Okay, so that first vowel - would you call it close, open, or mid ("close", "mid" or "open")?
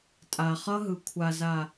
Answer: open